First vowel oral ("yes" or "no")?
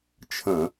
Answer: no